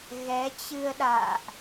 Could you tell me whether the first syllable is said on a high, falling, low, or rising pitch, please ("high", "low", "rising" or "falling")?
rising